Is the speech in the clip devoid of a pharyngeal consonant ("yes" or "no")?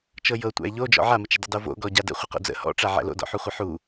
no